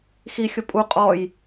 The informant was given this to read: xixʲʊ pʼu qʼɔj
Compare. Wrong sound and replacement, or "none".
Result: none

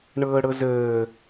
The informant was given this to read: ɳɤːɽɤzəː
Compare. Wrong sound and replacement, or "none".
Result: none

